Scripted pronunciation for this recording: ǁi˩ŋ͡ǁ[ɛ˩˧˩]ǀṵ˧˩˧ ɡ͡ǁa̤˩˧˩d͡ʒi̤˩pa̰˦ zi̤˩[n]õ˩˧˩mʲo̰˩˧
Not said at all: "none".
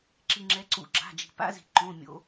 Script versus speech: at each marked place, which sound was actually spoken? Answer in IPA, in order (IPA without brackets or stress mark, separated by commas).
ɛ˩˧, ǃ